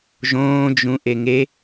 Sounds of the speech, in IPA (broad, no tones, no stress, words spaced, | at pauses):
ʒõːd͡ʒũ ʔeŋe